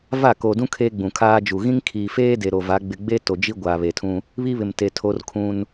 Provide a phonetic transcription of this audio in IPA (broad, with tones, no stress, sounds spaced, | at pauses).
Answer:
v a˦˨ k o˨ d ũ˦ kʰ eː˦ ɡ͡b ũ˨ kʰ aː˦ d͡ʒ u˨ ɣ ĩ˦ ŋ kʰ iː˨ f eː˦ d e˨ ɾ o˨ v a˨˦ ɡ͡b ɪ˨ ɡ͡b e˦ t o˨ d͡ʒ i˦ ɡʷ aː˨ β e˨ tʰ ũ˦ | β i˦ β ɪ˨ m t e˨ tʰ o˦ r kʰ ũ˦ n